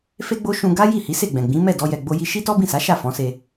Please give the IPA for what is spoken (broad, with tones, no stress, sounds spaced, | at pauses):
f e˦ ɡ͡b o˦ ʃ ũ˧ ɡ a˦ j i˦˨ h i˨˦ s e˦˨ ɡ͡b ɛ̃˨ ɡ͡b ĩ˨˦ m ɛ˦˨ d ɔ˧ j ɛ˨ ɡ͡b o˧ j i˧ ʃ i˦ t ɔ˦ b ĩ˦˨ s a˨˦ ʃ a˦˨ f ɔ̃˨˦ s e˧